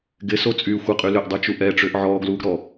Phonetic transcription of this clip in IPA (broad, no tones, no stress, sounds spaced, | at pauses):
ɡ ɪ s o t͡sʼ yː xʷ ɪ qʼ y l ʏ ʔ dˤ u t͡ʃ u ʔ ɛ ʈ͡ʂ ʏː ʔ ʕ ɔː ɡ l uː ɡ ɾ ɔ